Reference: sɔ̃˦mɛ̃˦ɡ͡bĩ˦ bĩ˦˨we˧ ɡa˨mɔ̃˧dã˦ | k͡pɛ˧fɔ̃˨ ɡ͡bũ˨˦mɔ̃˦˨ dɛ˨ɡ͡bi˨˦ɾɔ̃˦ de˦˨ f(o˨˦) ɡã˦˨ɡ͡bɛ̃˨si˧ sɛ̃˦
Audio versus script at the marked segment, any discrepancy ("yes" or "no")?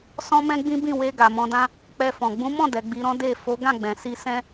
no